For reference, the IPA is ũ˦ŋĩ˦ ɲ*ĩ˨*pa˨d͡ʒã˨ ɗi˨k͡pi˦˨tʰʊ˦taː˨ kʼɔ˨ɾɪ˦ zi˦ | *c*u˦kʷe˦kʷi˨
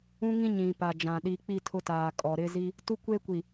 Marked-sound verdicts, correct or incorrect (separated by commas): correct, incorrect